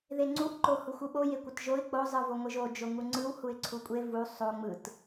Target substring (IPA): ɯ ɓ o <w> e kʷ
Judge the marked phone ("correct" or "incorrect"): incorrect